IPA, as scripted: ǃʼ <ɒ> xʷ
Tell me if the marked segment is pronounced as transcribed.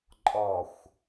yes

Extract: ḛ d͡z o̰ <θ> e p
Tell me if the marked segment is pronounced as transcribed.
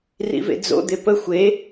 no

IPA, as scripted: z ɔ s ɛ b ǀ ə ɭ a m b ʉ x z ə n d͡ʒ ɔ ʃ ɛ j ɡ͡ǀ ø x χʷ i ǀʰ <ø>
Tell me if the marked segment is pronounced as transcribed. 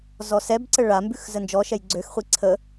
no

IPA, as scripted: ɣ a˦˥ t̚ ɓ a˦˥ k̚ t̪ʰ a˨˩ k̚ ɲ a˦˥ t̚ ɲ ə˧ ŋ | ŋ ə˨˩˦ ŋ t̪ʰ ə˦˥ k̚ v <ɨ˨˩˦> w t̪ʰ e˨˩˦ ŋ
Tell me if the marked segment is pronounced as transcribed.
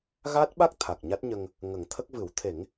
yes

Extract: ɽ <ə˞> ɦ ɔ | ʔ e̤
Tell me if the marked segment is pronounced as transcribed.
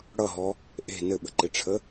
no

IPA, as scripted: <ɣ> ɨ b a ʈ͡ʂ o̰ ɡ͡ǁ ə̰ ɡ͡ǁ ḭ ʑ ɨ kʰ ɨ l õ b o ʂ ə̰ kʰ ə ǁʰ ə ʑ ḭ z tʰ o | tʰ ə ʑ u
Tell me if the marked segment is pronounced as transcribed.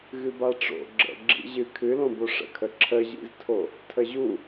yes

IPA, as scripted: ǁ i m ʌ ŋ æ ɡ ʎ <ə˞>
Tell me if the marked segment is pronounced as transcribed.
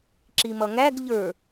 yes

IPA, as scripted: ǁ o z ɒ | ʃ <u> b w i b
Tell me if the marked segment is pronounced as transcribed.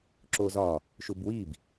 yes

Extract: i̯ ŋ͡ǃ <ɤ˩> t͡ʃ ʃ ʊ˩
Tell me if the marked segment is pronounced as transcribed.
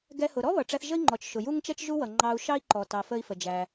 no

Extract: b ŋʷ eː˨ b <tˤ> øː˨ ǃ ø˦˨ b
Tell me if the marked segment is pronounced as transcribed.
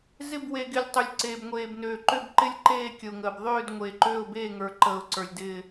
no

